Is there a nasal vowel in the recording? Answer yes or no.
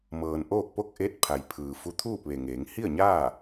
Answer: no